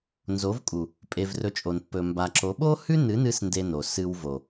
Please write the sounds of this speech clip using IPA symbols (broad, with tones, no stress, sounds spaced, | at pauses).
n z o˨˦ v kʼ u˨ | pʼ e˧ v r ɵ˧ t͡ʃʼ o˨ n pː ɵ˨ m b a˨ ǁ o˨˦ ɓ o˦ h ʉ˦ n ɨ˨˦ n ɨ˧ s n d e˦ n o˨ s ɨ˧ w v o˨